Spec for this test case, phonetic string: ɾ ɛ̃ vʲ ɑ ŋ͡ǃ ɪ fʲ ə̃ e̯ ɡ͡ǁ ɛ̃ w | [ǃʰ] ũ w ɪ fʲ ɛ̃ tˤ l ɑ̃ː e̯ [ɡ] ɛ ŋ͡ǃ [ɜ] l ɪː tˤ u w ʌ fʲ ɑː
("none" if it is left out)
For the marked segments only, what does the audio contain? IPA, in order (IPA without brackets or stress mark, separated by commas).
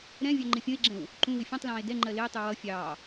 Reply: ǃ, d, ɜ